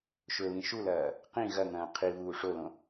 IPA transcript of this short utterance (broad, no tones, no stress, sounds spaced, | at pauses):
ʃ ɵ β ĩ ʃ u l ɐː | q ĩ ɣ ɐ ŋ ɐ̃ː qʰ i β uː ʂ o l õ